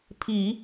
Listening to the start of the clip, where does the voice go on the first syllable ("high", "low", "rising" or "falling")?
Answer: low